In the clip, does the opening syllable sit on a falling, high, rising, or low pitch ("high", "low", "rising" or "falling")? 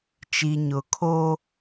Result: low